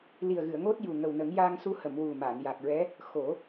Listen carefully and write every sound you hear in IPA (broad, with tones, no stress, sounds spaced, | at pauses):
l i˨˩ ə̯ ɣ ɨ˨˩˨ ə̯ ŋ o˦˥ t̚ j u˨˩ ŋ ə˨˩ w n ə˨˩˦ ŋ j a˧ ŋ s u˧ h ə˨˩˨ m w u˨˩ m a˨˩˨ n j a˨˩ k̚ ɹ ɛ˧˥ | x o˨˩˦